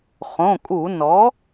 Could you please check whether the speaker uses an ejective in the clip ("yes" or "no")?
yes